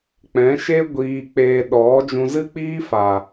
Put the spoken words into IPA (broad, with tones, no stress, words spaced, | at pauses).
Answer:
k͡pɛ̃˨˦ʃe˦ ɡʷiː˧k͡peː˧ ɗɔ˨˦ d͡ʒũ˧zɨ˦k͡piː˦ fa˨